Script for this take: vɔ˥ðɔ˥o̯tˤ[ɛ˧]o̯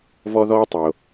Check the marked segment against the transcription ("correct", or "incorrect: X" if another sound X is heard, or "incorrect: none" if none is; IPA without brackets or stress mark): incorrect: ɛ˩